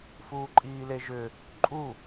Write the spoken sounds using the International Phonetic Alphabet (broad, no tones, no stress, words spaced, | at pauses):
fuːǃʼiːleʒʏ | ǃʼu